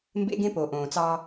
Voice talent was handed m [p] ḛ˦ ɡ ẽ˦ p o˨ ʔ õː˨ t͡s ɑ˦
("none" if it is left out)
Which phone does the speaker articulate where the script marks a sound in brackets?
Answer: b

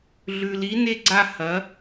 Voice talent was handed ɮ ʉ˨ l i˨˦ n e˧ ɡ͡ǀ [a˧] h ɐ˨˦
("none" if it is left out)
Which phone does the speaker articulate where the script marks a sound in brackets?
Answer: a˧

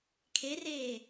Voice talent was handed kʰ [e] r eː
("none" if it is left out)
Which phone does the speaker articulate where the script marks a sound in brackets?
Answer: e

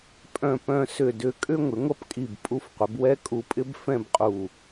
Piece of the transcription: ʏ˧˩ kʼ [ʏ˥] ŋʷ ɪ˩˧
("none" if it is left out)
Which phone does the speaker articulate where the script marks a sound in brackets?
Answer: ʏ˥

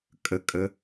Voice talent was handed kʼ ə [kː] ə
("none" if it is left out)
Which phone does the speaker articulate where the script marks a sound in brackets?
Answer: kʼ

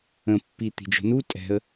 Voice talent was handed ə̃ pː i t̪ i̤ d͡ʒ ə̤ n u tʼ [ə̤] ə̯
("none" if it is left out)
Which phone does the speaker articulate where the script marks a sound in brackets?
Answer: ɛ̤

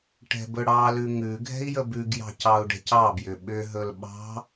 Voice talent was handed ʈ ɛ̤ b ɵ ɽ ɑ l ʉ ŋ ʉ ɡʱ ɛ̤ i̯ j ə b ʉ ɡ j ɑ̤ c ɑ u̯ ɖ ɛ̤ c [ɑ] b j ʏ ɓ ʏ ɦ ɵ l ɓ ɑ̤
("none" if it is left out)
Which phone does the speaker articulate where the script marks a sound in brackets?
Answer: ɑ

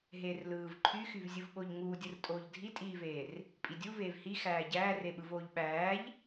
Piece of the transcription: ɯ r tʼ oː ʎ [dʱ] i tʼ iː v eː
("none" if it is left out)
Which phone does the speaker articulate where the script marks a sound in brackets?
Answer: dʱ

